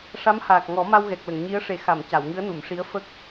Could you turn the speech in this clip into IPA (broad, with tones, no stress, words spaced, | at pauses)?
ʂa˧˥mhaː˨˩k̚ŋɔ˨˩˦ma˧w ɣɛ˨˩k̚lə˨˩˨ŋɲi˧˥ə̯ʂe˨˩ xa˨˩˨m ca˨˩˨wŋɨ˧˥ə̯nu˨˩˨mʂi˧˥ə̯ fə˦˥k̚